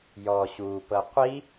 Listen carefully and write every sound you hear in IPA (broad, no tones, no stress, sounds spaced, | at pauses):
j ɔ ɕ u p ɤ qʷ i